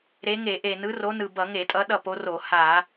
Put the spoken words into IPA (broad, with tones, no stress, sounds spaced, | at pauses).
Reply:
ɾ e˨˦ ŋ e˧˩˧ ʔ e˨˩ n ɯ˨˦ r o˨˦ n ɯ˨˩ b ʌ˧˩˧ ŋ e˧˩˧ tʼ ʌ˨˦ ɗ ʌ˦˨ p o˨˦ r o˧˩˧ h a˧˩˧